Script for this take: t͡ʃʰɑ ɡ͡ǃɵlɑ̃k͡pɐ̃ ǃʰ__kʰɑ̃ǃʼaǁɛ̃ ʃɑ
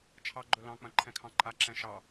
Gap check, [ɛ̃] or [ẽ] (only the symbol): ɛ̃